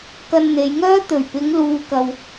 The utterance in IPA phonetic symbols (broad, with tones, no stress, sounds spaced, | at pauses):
k ɐ˧ n n̪ e˨˧ j ŋ œː˥ t̪ ɵ˨˩ ɥ p ɪ˨˧ ŋ l uː˨ k ɐ˨ w